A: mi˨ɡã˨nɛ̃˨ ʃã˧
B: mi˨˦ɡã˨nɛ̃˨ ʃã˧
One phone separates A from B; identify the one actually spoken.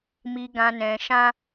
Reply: A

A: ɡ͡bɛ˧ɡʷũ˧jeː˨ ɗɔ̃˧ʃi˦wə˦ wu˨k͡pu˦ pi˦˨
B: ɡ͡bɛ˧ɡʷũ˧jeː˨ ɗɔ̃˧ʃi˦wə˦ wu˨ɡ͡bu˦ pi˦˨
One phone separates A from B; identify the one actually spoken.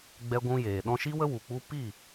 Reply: A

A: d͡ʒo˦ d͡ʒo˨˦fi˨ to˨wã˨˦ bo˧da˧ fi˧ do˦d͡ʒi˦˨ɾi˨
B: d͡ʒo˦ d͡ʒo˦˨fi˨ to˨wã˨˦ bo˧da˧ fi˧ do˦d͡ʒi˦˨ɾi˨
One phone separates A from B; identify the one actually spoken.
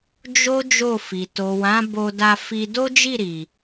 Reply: B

